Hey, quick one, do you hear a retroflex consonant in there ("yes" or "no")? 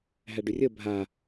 yes